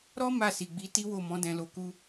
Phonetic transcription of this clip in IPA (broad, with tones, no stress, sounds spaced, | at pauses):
ɾ ɔ˦ m a˦˨ s i˨ ɡ͡b i˨˦ t i˦ w o˦˨ m ɔ̃˨˦ d ɛ̃˧ l o˧ k u˦